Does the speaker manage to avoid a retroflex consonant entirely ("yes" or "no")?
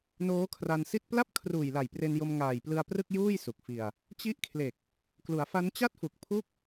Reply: yes